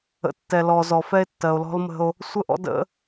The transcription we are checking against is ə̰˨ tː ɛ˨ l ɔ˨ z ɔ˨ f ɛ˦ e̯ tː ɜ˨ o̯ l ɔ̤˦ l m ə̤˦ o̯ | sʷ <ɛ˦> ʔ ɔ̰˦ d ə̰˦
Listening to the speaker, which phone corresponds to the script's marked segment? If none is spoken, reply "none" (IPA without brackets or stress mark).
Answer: ə˦